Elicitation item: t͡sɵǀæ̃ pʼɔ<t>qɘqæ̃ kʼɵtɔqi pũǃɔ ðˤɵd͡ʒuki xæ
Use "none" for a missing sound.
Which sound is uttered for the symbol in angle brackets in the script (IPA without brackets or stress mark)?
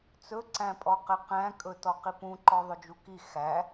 none